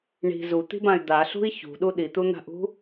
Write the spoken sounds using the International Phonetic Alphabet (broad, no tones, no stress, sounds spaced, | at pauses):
ɳ i̤ z u t̪ i̤ b ã y̯ d̪ a ɬ ṳ i̯ ç ṳ ɗ u ɗ i t̪ u n̪ a̤ ʔ ṳ